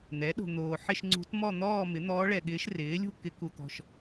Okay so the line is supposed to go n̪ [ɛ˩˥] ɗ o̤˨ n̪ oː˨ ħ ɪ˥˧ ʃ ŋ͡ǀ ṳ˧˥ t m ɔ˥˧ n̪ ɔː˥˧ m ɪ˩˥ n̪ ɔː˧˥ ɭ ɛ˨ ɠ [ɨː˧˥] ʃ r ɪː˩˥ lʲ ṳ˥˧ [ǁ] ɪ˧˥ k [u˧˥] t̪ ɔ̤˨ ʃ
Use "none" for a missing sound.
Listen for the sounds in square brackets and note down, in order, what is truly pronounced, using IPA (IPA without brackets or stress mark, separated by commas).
ɛ˩˥, ɪː˧˥, k, u˨